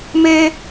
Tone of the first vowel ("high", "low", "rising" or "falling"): high